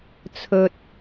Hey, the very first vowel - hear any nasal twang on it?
no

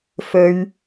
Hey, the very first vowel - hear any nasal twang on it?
no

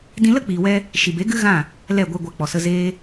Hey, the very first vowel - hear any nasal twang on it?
yes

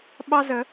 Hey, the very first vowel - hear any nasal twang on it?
no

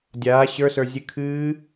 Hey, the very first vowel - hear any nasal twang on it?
no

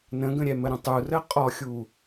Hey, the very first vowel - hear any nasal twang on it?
yes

